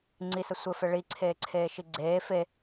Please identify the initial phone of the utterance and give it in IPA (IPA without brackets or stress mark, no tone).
ŋ͡ǀ